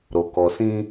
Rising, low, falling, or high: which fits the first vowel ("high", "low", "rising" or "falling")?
low